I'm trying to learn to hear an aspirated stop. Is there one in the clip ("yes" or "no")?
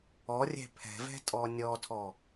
yes